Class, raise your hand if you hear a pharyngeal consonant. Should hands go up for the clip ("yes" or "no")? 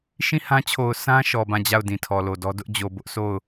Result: no